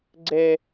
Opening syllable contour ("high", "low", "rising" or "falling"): high